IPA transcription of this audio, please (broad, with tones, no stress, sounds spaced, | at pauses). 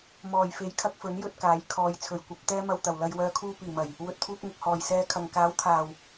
m ɔː˨˩ j f e˨˥ j kʰ ɐ˧ k̚ f ɵ˨˥ n j ɵ˧ t̚ k aː˨˥ j kʰ ɔː˨˧ j t͡sʰ ɵ˨˩ ɥ kʷ ɐ˨˥ p̚ t̪ ɛː˥ m ɐ˧ w t̪ ɐ˨˩ w l ɐ˧ j w œː˧ kʰ uː˧ p iː˨˩ m ɐ˨˩ j | w ɵ˨ t̚ t̪ʰ uː˧ k̚ ŋ ʊ˨ k̚ h ɔː˨˩ j s ɛː˧ kʰ ɐ˨ ŋ k aː˨˥ w t̪ʰ aː˨˩ w